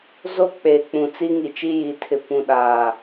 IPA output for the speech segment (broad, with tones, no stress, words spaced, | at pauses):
zo˦k͡peː˨ k͡pũ˨t͡si˦ŋi˨ t͡ʃi˦ji˨tʰɪ˨ pũ˨ɗaː˨